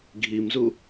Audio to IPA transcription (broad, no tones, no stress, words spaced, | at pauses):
ɡʱimzu